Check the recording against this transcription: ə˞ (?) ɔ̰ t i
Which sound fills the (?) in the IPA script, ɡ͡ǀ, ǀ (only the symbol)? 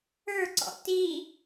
ǀ